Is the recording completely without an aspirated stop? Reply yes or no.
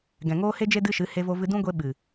yes